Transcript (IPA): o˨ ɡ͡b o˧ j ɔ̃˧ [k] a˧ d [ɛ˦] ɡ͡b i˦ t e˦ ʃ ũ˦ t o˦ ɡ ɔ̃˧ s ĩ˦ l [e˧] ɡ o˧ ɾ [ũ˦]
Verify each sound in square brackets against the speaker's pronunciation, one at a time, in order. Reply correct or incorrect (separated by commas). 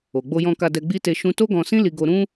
correct, incorrect, incorrect, correct